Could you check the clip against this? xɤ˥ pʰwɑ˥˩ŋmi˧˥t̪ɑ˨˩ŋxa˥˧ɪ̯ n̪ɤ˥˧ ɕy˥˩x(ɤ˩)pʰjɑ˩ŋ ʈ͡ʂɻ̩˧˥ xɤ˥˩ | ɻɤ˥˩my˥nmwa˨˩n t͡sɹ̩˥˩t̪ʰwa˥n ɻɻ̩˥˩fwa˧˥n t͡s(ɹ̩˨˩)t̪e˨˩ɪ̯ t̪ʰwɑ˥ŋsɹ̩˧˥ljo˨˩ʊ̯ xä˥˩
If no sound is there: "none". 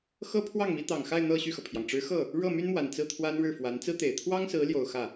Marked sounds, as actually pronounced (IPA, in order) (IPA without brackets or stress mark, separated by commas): ɤ˩, ɹ̩˥